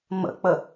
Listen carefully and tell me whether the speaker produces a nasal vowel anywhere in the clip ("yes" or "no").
no